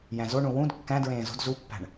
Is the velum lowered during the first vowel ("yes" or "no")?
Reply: yes